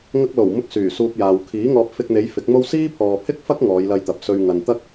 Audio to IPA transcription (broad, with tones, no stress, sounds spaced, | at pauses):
ŋ ɐ˧ k̚ l o˨˩ w m ʊ˧ k̚ s yː˨˩ s uː˧ p̚ j aː˨ w kʰ iː˨˥ ŋ ɔː˧ p̚ f ɪ˧ k̚ n̪ e˨˧ j f ɪ˨˥ k̚ m o˥ w s iː˥ pʰ ɔː˨ pʰ ɪ˥ k̚ f ɐ˥ k̚ ŋ ɔː˨˧ j l ɐ˧ j t̪ ɐ˨ p̚ s ɵ˧ ɥ ŋ ɐ˨ n t̪ ɐ˥ k̚